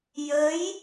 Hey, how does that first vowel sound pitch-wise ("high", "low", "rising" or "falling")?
rising